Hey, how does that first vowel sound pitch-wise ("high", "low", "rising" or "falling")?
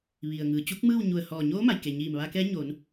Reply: low